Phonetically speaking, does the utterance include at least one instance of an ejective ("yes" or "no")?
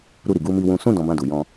no